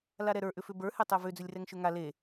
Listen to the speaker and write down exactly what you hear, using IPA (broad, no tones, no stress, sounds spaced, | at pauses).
l a ɾ ɛ ɾ ə˞ ʔ ʏ f ʏ b ə˞ h e tˤ ɛ v ʏ d͡z ʏ lʲ r ɛ ŋ ʃ ʏ ŋ a l e